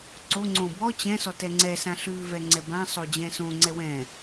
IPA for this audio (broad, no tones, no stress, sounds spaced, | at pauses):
ǀ o ŋ͡ǀ õ b ɔ t͡ɕ ɛ̃ s ɔ t ɛ ŋ͡ǀ ɛ s ã ɬ ʉ v ɛ ŋ͡ǀ ɛ b ã sˤ o d͡ʑ ɛ̃ s õ ŋ͡ǀ ɛ w ɛ̃